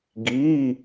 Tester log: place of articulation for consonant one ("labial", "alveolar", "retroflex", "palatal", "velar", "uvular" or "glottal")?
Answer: velar